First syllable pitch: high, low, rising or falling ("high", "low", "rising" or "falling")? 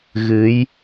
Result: rising